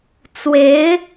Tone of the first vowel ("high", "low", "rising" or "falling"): rising